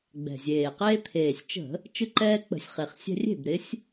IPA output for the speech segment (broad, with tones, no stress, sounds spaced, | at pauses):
ɡ͡b ɛ̤˨˩ zʲ eː˨˩ q eː˦ t̪ʰ eː˨˩ sʲ t͡ʃ ə̤˧˩˧ | t͡ʃ ɯ˦ ǃ ɛː˦ k͡p ə̤˧˩˧ sʲ χ e˨˩ χ sʲ ɛ̤˦ rʲ e̤˥˩ b ɾ ɪ˨˥ sʲ